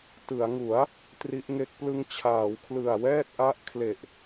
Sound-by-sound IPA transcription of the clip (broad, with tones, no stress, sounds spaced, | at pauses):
t ɯ˩˦ a̯ ŋ u˩˦ a̯ | t r i˦˥ ʔ ŋ e˦˥ k̚ p l ɯ˧ ŋ t͡ɕʰ aː˩˦ w kʰ l ɯ˨˩ a̯ w ɛː˥˩ t̚ ʔ a˦˥ ʔ kʰ l e˨˩ ʔ